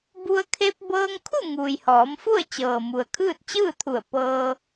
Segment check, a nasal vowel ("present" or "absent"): absent